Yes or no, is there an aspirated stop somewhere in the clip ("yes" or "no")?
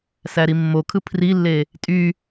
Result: yes